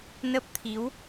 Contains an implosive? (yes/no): no